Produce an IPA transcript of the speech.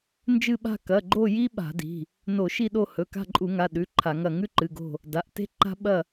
n d͡ʒ ɨ˦˨ ɓ a̤˦˨ k ɐ˩˧˩ ɡ͡ǃ o˦˨ j i˦ ɓ a̤˧˩˧ d i̤˩˧˩ | n o˧˩˧ ʃ i˦˨ ɗ o˦˨ h ɵ˩˧˩ k a̤˦˨ ǃʼ u˧˩˧ ŋ a˩˧˩ ɗ ʉ˩˧˩ ǃʰ a˧˩˧ ŋ ɐ˦˨ ŋ ʉ˦ ǃ ɨ˩˧˩ ɡ o̤˦˨ | d a˩˧˩ ʔ t e̤˦ ǃ a̤˦ ɓ ɐ˦˨

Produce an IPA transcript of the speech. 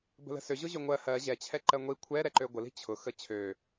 b ə̤ l ə̤ s ø ʑ ʊ ʑ ø ŋʷ ɜ h ɜ ʑ ɛ t͡ɕʰ ɛ ǃ ɜ ŋʷ i kʷʰ ɛ ɾ ɛ ǃ ø ɡʷ ə l i̤ t͡ɕʰ ʊ x ə t͡ɕʰ ø

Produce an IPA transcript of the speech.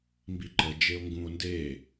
m b i ǃ ə d͡ʒ e o̯ ŋ ɡ ũ o̯ n d e

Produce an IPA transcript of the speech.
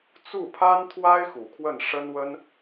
t͡s u˥˩ pʰ a˥ n t̪ʰ w a˥ ɪ̯ x u˨˩ kʰ w ə˥˩ n ʂ ə˥ n w ə˥ n

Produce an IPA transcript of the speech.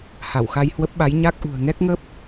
h a˧˩ w x a˧ j h w ə˦˥ p̚ ɓ a˨˦ j ɲ a˦˥ k̚ ʔ ṳ˨˩ ə̯ ŋ ɛ˦˥ k̚ ŋ ə˦˥ p̚

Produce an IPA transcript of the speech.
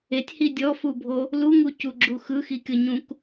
e tʲ h i dʲ ɔ f u bʱ o | l u ŋ u c u ɡ͡ǁ u x ɯ x i kʲ ɤ ɲ ũ k

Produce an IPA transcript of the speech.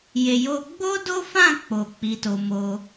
j e˧ j o˦ ɡ͡b o˦ d o˦ f ã˦˨ k͡p o˧ k͡p i˧ t o˧ m o˦

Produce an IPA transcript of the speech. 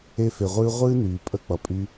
e˦ f e˨ ʁʷ ɨː˦ ʁʷ ɨː˦ n yː˨ pʼ ə˦ k͡p ʌ˨ pʼ y˦

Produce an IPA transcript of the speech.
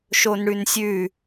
ʃ o n ɽ ʉ n sʲ ʉ

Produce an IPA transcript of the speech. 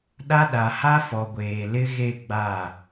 ɗ a˦ ɗ a˨ h a˦ f ɔ˨ ɡʷ eː˨ l ɪ˦ ɣ e˦˨ ɡ͡b a˦˨

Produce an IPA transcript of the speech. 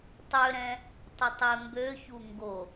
tˤ ø ɾ ɛ̃ | tˤ ə tˤ e m b ø ç u ŋ ɡ o

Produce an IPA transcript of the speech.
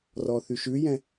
r ɔ θ y ʃ ʉ j ɛ̃

